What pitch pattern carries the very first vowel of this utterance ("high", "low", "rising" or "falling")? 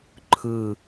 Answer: falling